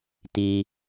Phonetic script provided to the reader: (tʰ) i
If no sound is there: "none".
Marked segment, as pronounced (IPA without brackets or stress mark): t